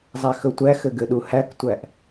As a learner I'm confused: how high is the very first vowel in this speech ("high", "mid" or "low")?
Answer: low